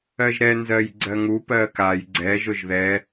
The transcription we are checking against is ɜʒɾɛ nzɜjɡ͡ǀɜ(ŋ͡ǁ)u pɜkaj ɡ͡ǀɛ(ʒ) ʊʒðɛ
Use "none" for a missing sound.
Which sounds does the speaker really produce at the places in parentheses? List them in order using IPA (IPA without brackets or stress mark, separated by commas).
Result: ŋ, ʒ